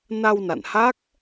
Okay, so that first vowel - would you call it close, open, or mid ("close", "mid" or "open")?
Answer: open